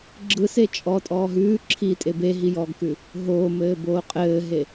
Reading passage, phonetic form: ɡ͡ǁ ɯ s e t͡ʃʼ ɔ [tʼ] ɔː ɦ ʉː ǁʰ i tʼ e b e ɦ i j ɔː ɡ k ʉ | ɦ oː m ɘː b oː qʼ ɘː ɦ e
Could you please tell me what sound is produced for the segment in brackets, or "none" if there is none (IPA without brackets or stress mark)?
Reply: tʼ